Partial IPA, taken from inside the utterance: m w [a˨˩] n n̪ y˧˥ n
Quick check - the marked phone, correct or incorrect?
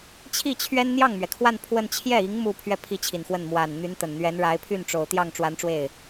correct